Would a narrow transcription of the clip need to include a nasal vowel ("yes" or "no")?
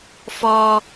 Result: no